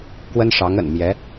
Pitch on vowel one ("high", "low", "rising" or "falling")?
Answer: high